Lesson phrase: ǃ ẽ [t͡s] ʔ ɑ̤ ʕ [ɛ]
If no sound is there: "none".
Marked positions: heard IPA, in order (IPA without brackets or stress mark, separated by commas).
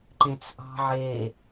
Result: t͡s, e